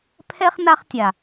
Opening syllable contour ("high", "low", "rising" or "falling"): high